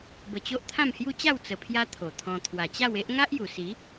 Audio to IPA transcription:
b ə˧ t͡ɕ o˦ ʔ t̪ʰ ã˥˧ m h j u˦ t͡ɕ a˥˧ w t͡s ə˧ pʰ j a˦ t̪ʰ o˨˩ t̪ʰ ɔ̃˧ t̪ʰ w a˨˩ t͡ɕ a˥˧ w e˦ ʔ ŋ a˦ ʔ j u˨˩ s i˨˦

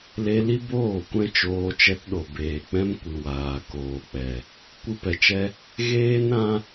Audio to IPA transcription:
l e˧ l i˦ b oː˦˨ kʷ ɛ̃˦ t͡ʃ oː˧ t͡ʃ ɛ˧ t ɗ o˨ b eː˨ k͡p ɛ̃˧ m kʷ ɨ˨ w aː˨ k oː˨ k͡p ɛ˨ | kʷ ɨ˦ p ɛ˧ t͡ʃ ɛ˦ | ɣ eː˦ n ɾ ã˦

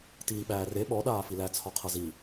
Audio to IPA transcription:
t iː ɓ æː r e ɓ ɔ ɗ aː f i l æ t͡sʰ ɒ qʰ ʌ z i

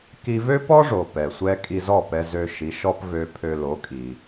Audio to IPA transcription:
k i˧ v ø˥ p ɔ˥ ʐ o˩ p ɛ˩ sʷ ɛ˧ kʼ i˧ z ɔ˥˩ p ɛ˧ z ø˧ ʃ i˩˥ ʃ ɔ˥ p v ø˧ pʰ ø˧ l o˩˥ kʼ i˩

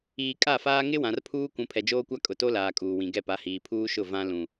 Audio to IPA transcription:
iː˨ kʼ a˦˨ f aː˦ ŋ ɪ˦ w ã˨ r pʰ uː˦ kʷ ũ˨ pʰ ɛ˨ d͡ʒ oː˦ kʷ a˦ kʼ ʊ˨ t o˦ l aː˨ kʼ uː˨ w ĩ˨ ɡ ɛ˦˨ p a˨˦ h iː˨ pʰ uː˦ ʃ ʊ˦˨ v ã˦ l ũ˨

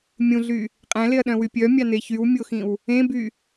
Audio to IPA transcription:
mʲ ũ ɮ y | qʼ æ̃ l e ɐ̯ ɗ œ̃ w y pʲ œ mʲ ɑ n e ç y w mʲ o x ĩ w | ẽ b y

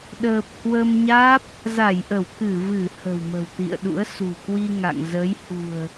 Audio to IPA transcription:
ɗ əː˨˩ p̚ h w ə˧ m ɲ aː˦˥ p̚ | z a˧˩ j ʔ ə˧˩ w k ɨ˧˩ v ɨ˧˩ h ə̤˨˩ w m ə̤˨˩ w t̪ ḭ˧˨ ə̯ ɗ ṵ˧˥ ə̯ s ṳ˨˩ k w i˧ ŋ a̰˧˨ ŋ z ə˨˦ j h ṳ˨˩ ə̯

